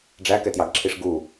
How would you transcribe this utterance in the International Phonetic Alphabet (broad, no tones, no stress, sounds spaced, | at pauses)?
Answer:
ɖ͡ʐ æ k ɛ t j ɑ ɡ ǁʰ i ʂ ɡ u